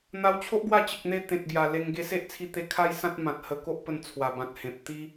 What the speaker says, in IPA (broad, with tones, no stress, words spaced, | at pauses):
n̪a˧wt͡ɕʰo˦ʔ ɡwa˥˧ t͡ɕə˨k̚n̪e˧ t̪ẽ˨t̚ɡja˨˩ le˧ŋ ɡe˧se˦ʔt͡sʰi˧ t̪e˧kʰa˦jsã˦t̚ mã˨t̚ hə˧ ko˦ʔpə˧n t͡sʰwa˨˩bã˨t̚hẽ˨p̚ t̪i˦